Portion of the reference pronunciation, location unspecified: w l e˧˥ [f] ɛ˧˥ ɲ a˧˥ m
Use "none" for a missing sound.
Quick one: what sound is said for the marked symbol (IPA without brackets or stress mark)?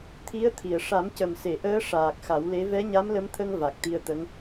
v